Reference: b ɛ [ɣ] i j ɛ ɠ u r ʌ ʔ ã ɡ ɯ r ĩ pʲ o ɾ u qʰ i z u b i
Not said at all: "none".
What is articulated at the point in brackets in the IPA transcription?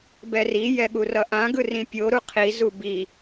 r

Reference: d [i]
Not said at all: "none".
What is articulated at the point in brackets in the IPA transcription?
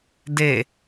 e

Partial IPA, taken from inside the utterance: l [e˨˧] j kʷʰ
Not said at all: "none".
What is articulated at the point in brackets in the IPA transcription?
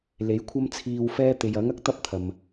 e˨˥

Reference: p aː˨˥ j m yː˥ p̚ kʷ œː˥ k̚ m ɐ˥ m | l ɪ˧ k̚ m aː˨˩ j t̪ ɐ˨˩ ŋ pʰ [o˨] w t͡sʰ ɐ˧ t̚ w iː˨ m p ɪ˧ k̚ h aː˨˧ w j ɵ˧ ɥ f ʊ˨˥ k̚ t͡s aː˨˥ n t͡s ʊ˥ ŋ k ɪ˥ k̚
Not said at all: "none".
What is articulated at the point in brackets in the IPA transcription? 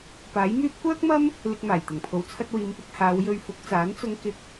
o˨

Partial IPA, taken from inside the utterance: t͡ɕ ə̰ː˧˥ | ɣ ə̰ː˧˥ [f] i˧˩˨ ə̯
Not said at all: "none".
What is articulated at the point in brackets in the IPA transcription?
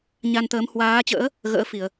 f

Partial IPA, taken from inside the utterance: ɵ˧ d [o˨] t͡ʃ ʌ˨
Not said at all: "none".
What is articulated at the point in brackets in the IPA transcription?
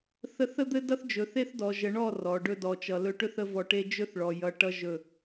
ɔ˨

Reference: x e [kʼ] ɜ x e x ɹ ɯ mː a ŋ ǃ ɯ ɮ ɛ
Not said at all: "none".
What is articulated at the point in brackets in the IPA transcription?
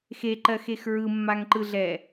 ǃ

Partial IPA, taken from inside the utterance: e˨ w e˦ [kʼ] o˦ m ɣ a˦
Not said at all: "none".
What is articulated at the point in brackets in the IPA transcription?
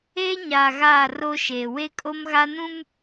kʼ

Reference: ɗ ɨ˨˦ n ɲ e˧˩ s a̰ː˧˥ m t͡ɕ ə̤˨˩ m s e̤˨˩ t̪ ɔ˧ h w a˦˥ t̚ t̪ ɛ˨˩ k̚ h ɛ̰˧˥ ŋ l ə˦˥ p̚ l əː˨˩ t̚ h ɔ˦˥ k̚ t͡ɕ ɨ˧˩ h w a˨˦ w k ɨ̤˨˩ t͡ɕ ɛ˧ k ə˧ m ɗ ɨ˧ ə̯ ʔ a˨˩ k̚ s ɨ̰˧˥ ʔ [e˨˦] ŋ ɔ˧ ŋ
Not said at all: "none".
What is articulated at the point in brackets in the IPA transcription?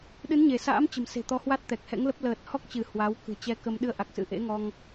ḛ˧˥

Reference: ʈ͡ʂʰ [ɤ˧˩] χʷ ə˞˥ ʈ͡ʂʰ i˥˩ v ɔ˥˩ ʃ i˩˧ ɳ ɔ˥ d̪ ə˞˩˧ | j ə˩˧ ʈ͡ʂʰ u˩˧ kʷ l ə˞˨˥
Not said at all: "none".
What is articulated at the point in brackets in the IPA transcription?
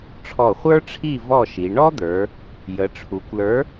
ɔ˧˩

